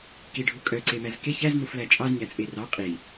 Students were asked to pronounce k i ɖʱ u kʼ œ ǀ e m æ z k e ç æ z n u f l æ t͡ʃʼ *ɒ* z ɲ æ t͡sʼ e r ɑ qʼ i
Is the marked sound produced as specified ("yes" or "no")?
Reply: no